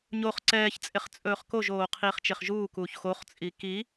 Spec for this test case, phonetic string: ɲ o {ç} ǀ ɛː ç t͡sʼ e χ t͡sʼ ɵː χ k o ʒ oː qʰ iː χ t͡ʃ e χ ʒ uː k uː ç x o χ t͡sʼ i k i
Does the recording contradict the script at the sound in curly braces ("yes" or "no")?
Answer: yes